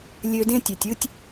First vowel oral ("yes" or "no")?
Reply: yes